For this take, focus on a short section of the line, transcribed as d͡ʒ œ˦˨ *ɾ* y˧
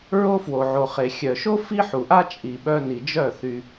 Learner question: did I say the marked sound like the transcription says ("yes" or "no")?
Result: no